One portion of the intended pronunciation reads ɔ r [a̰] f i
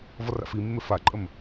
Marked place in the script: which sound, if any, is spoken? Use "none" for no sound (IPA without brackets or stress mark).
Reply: a̰